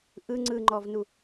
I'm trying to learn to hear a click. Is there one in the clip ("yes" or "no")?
yes